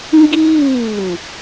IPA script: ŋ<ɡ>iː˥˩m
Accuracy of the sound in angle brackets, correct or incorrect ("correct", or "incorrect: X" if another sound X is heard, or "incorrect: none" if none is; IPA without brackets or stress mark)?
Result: correct